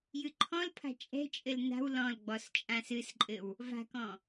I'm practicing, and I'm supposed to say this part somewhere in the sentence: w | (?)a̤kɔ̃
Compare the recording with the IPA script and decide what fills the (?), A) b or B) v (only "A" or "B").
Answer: B